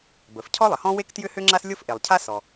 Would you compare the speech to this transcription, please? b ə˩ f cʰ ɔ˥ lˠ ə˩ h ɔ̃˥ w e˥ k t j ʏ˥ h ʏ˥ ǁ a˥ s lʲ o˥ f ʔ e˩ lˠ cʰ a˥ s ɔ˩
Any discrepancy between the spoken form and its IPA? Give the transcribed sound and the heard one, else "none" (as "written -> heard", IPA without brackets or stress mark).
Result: ǁ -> ŋ͡ǁ